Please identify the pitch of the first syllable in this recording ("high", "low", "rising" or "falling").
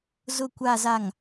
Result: low